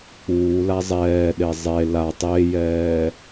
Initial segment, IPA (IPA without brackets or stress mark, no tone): k͡p